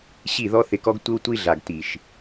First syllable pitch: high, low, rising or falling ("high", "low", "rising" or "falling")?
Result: falling